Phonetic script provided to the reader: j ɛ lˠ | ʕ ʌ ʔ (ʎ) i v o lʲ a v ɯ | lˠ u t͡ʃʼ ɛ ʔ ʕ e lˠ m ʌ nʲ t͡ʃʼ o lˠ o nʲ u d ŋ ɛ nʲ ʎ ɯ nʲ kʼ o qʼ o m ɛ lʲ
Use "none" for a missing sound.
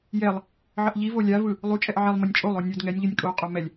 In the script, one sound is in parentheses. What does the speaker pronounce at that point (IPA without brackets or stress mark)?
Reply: ʎ